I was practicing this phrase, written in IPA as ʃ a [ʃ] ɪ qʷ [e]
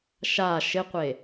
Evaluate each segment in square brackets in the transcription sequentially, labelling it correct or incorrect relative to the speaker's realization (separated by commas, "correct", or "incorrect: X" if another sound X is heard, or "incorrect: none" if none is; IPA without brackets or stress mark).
correct, correct